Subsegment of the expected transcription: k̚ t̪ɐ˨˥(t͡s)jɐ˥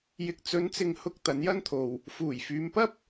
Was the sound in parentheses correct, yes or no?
no